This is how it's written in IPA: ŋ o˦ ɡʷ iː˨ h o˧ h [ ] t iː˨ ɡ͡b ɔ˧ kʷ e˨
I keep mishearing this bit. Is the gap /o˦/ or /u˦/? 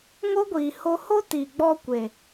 o˦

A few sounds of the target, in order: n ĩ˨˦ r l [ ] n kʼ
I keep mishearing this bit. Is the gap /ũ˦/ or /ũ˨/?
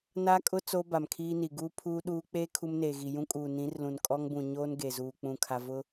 ũ˨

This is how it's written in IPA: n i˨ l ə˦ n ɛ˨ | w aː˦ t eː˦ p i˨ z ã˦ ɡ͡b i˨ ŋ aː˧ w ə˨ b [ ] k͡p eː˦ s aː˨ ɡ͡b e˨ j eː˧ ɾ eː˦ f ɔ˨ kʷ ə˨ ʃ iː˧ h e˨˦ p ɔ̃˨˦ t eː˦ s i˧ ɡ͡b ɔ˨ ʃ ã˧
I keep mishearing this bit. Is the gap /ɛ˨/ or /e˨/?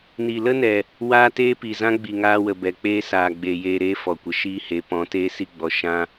ɛ˨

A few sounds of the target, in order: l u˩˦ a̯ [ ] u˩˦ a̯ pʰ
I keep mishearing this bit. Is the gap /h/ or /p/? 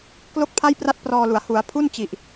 h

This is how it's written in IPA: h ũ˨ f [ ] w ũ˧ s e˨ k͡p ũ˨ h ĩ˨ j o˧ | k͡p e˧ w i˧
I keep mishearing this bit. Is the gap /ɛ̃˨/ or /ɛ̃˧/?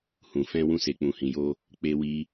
ɛ̃˧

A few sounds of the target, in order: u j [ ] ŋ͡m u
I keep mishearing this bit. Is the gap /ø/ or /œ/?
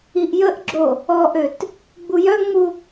œ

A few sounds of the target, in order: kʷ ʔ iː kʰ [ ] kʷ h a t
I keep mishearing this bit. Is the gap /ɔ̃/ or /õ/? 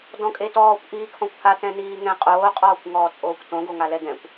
ɔ̃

